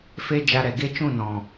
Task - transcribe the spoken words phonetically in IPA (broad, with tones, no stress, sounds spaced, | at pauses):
f e˦ d͡ʒ a˧ ɾ ɛ˨ ɡ e˦ t͡ʃ ũ˦˨ n ɔ̃˨